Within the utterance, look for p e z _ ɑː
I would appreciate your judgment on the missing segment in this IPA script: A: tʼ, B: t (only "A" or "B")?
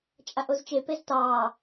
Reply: B